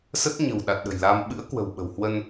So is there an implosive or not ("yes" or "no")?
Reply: yes